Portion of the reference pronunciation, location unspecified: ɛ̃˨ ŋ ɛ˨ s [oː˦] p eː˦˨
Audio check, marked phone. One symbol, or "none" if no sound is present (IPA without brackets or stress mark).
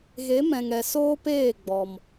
oː˦